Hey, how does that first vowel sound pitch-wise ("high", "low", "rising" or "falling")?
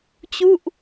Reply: falling